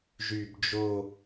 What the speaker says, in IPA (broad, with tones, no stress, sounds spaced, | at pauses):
ʒ y˨˩ b d͡ʒ o˦˨